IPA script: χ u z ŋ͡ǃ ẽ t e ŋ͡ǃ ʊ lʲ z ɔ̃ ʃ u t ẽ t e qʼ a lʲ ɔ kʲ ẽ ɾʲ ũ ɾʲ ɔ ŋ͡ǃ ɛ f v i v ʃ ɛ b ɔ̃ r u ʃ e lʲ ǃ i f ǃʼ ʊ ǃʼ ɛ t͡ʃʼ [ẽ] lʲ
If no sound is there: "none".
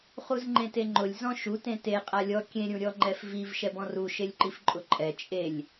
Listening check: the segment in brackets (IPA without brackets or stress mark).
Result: e